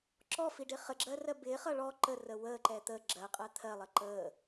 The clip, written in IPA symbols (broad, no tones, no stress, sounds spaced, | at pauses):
ǁ ɔ f i ɖ ɪ χ ə ɡ͡ǁ ɜ r ɜ b ɪː χ ʌ ɭ ɔ ǃ ə r ə w əː ǃ ɛ t̪ ə ɡ͡ǁ ɜ qʼ ɜ t̪ʰ ɜ lˠ ə ǃ əː